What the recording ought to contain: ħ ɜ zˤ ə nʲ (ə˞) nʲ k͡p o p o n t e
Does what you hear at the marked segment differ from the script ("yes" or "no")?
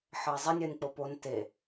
yes